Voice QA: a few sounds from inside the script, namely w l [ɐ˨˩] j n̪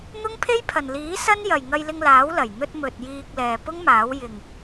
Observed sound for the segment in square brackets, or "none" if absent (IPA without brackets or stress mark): ɐ˨˩